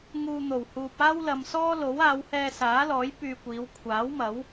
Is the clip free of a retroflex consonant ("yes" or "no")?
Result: yes